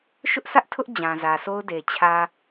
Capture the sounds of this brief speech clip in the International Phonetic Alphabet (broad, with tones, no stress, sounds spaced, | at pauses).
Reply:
ʃ ʊ˦ ʔ s ä˦ ʔ tʰ ʊ˦ ʔ d͡ʑ ã˨ z ä˨ s o˦ ʊ̯ d e˨ t͡ɕʰ ä˨